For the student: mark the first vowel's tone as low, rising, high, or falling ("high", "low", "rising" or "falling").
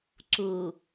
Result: low